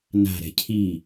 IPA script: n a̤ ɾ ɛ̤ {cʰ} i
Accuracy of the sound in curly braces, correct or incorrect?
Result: correct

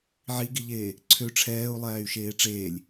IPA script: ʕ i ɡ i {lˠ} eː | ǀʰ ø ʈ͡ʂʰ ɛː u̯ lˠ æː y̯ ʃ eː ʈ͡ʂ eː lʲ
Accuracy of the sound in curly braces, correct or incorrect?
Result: incorrect: ʎ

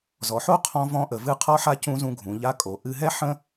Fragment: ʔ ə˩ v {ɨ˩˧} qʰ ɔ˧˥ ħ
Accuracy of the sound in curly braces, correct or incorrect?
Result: incorrect: ɨ˧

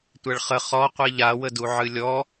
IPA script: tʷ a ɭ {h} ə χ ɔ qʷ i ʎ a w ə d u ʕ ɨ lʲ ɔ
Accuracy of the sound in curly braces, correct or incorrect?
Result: incorrect: χ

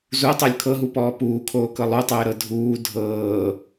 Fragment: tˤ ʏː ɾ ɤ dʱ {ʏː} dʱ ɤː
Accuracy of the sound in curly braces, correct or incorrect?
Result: incorrect: uː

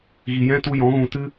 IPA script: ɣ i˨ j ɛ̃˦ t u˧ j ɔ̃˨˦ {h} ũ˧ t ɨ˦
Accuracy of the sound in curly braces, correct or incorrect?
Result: incorrect: ɣ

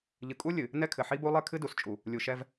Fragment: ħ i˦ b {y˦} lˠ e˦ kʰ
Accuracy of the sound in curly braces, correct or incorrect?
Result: incorrect: u˦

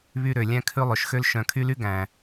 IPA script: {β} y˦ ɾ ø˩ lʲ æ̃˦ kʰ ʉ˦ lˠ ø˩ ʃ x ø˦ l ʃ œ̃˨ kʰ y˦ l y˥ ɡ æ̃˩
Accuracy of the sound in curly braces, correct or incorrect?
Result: correct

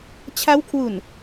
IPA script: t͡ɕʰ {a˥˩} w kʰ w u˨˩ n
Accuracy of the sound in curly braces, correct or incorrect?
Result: incorrect: a˦˥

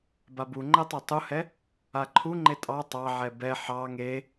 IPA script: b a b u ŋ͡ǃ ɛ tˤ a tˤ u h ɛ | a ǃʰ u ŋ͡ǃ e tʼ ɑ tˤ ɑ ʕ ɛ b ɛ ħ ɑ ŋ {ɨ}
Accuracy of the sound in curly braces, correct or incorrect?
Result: incorrect: e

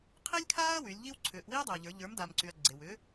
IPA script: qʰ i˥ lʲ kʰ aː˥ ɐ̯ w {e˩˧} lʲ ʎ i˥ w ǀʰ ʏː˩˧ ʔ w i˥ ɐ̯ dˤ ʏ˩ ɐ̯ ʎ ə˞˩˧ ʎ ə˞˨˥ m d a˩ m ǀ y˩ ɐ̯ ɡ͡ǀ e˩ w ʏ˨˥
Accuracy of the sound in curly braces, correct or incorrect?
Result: incorrect: y˩˧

